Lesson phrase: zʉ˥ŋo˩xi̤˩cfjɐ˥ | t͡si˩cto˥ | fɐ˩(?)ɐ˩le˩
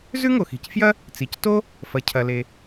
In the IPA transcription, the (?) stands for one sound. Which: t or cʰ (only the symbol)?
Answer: cʰ